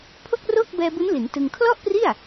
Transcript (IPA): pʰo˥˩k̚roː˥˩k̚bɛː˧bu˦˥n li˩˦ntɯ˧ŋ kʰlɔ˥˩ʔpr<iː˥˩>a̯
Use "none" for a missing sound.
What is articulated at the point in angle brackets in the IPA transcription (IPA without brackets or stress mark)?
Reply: i˥˩